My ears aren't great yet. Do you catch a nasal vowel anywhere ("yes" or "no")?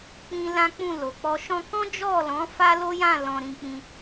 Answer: yes